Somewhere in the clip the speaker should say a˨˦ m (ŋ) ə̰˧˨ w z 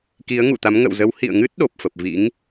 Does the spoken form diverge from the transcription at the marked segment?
no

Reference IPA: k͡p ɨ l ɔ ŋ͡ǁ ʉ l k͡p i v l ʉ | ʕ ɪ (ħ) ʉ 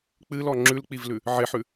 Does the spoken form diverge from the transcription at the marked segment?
no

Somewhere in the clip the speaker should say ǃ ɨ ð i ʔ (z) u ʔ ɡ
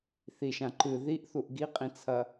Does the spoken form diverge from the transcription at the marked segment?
yes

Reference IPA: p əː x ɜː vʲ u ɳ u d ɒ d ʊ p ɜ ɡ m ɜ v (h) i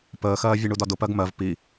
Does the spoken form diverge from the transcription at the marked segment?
yes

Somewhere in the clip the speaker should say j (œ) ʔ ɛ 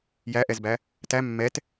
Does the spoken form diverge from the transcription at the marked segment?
yes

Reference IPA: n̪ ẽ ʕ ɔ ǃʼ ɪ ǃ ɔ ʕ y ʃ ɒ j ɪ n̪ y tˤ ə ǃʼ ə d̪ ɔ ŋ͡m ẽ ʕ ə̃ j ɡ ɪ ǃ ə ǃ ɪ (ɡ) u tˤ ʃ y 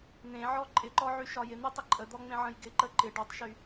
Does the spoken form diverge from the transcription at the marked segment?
yes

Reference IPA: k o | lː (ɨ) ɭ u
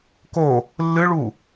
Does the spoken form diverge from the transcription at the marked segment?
no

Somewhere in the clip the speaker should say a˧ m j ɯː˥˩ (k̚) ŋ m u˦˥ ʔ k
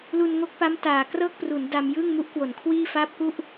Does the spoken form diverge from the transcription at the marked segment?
yes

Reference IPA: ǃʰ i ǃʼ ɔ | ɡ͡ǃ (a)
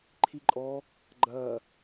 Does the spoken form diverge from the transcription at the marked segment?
yes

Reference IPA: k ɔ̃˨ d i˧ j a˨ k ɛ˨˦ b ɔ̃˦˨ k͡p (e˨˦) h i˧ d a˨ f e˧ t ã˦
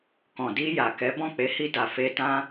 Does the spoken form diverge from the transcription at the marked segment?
no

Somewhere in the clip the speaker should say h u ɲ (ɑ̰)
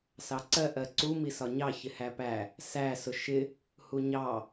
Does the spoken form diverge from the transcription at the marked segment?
yes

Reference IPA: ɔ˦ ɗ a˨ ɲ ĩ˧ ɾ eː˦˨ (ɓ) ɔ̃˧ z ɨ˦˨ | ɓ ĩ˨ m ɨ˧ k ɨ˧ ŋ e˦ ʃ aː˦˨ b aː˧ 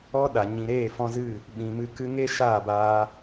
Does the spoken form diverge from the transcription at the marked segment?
yes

